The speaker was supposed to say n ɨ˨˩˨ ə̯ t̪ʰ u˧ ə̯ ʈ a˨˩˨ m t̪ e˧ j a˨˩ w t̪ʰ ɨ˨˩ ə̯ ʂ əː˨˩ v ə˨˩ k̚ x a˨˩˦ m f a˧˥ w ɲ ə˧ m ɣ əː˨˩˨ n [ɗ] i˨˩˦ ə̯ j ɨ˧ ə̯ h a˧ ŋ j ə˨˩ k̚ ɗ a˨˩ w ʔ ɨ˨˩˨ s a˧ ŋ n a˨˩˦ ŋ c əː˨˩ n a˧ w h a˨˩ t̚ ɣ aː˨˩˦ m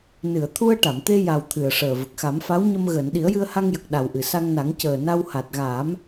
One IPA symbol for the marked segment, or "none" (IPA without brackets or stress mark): ɗ